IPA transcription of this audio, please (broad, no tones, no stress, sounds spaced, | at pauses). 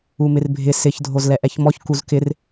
u m ɪ r bʱ ɪ s ɪ ç dʱ o z l ɛ ʔ ɛ ç m ɔ ç k u z k ɪ r